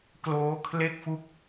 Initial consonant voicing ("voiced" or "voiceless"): voiceless